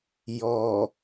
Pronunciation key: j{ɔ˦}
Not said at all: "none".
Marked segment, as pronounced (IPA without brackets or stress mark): ɔ˨